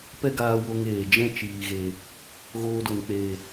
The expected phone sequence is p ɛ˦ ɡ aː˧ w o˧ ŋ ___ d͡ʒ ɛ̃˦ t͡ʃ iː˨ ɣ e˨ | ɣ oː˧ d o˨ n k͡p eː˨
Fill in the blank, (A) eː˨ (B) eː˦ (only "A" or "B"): A